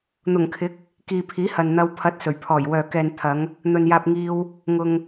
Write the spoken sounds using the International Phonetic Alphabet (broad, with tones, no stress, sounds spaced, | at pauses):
n̪ ʊ˨˩ ŋ kʰ ɪ˨˥ k̚ | k iː˨ pʰ iː˨˥ h ɐ˨ n n̪ ɐ˧ w pʰ ɐ˨˥ t̚ s ɵ˨˩ ɥ pʰ ɔː˨˩ j w œː˨ k ɛː˨ n t̪ʰ ɐ˨˧ ŋ | n̪ ɵ˨ n j aː˧ p̚ ŋ iː˧ w | ŋ ʊ˨ ŋ